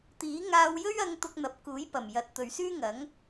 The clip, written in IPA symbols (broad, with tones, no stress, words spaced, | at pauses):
t̪iː˨˥ ŋaː˧wjɵ˥ɥɐ˧ŋ t̪ʊ˧k̚n̪ɐ˨p̚kuː˨˥jpɐ˨˩m jɐ˨t̚ t̪ɵ˨ɥsyː˥ŋɐ˨˥ŋ